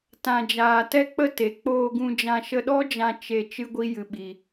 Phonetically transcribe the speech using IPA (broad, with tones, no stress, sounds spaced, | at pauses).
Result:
t ã˧ d͡ʒ aː˧ t ɛ˧ k͡p ə˧ t e˨ k͡p oː˧ ɡ ũ˧ d͡ʒ ã˧ ʃ ə˧ ɗ ɔ˦ d͡ʒ ã˧ t͡ʃ e˧ t͡ʃ ɨ˦ ɡʷ i˦ j ɨ˧ ɓ i˧